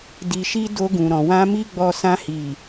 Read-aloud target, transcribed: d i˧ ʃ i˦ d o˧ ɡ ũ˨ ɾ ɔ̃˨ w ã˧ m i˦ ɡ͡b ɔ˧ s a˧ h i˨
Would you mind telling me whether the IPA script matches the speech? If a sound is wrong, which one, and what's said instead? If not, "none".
a˧ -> ã˧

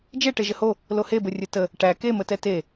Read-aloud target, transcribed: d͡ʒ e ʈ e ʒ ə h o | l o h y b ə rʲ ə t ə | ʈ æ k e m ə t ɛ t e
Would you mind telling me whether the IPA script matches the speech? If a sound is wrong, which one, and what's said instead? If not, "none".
y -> e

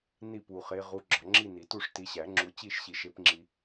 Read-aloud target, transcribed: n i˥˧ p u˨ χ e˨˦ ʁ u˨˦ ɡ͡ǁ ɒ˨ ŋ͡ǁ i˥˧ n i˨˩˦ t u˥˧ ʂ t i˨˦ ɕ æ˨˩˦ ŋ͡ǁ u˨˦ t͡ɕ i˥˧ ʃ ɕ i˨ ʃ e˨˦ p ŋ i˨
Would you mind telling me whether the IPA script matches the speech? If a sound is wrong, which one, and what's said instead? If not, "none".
ŋ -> ŋ͡ǁ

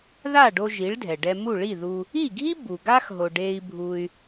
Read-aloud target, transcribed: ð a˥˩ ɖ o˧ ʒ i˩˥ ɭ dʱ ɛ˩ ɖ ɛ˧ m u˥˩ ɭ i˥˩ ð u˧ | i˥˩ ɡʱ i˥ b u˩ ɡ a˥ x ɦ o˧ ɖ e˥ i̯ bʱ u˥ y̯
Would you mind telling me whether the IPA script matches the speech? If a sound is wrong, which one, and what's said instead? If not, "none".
none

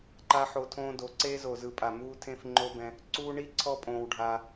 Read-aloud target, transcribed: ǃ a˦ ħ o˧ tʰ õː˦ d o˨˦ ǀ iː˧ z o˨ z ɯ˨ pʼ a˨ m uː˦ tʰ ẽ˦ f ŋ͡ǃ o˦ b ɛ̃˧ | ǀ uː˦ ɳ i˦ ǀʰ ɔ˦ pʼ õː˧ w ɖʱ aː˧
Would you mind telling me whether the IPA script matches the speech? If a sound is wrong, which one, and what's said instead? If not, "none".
iː˧ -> eː˧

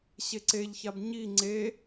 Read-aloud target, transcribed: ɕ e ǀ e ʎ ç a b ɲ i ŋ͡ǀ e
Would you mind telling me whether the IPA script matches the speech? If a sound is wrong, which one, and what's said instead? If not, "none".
none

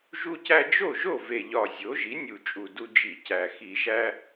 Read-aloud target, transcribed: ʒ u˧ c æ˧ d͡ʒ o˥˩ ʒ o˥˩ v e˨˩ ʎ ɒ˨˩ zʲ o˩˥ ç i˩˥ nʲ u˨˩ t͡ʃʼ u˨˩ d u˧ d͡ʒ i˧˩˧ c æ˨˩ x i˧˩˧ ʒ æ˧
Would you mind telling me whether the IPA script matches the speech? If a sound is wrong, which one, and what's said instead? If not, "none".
ç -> ʒ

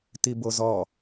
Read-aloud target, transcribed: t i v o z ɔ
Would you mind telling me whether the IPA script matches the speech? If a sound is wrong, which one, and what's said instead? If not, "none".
v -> b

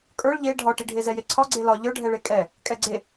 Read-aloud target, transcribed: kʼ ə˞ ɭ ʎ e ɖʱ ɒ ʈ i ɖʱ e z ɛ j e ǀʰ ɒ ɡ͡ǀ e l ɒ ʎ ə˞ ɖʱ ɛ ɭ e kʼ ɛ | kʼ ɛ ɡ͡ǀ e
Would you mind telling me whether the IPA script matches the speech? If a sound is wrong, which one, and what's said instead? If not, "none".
none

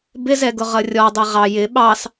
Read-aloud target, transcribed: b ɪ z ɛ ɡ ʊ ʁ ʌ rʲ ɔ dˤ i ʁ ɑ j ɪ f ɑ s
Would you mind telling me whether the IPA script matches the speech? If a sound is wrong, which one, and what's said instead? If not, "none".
f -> ɓ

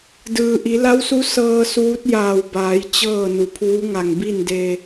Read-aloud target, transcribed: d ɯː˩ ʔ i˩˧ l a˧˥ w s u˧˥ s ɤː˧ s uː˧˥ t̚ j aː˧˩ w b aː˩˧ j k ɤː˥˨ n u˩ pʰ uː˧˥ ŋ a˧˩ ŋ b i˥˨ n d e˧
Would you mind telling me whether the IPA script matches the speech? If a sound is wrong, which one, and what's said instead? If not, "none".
k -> t͡ɕ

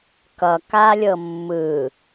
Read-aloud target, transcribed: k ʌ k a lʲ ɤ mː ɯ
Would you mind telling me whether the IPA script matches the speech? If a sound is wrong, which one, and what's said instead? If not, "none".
none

